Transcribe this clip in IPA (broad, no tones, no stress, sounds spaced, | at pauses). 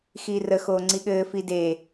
x iː r ə x oː ŋ͡ǀ i ɠ ɘː f i d e